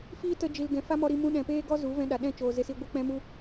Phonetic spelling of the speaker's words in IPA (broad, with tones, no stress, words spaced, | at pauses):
fiː˦tə˧d͡ʒi˨l ɡɛ̃˨fa˦mɔ˧ɾi˧ mũ˧ɗɛ̃˨peː˦ɡɔ˦ zu˨˦vɛ̃˧ɗa˨ ɗɛ̃˦˨ t͡ʃoː˨ze˧si˧ ɡʷɨ˧ k͡pɛ̃˦mu˦